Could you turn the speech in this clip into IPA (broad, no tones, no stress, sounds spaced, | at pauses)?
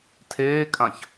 tʰ eː kʼ ã ç